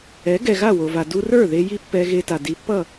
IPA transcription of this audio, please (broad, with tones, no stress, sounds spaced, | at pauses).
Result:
ɛ˩˥ ɡ ɛ˩ ɣ a˥˩ w o˩ v a˩ d u˧ r ə˞˥˩ ð e˧ j i˥ pː ɛ˧ ɣ e˧ t a˩ d i˩˥ pː ʌ˥˩